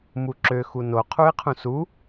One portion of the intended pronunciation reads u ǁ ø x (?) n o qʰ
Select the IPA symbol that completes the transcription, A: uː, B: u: B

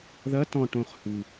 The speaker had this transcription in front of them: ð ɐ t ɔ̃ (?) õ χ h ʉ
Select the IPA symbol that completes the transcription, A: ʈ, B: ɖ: A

